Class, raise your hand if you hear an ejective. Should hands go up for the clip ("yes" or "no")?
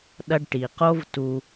no